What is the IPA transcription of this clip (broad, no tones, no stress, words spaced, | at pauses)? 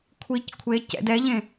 kʷʰic kʷʰe cɛ̰d ɛʎẽ